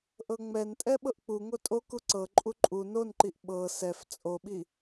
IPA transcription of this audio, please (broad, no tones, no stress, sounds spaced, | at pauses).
ʔ ɤ ŋ͡m ɛ n tʼ ɛ ɓ ɤ ʔ k͡p u ŋ o tʼ o k u ǀ ɤ ǃʼ u ǃʼ u n o n ǃ i ʔ ɓ ɤ s ɛ f t͡sʼ o ɓ i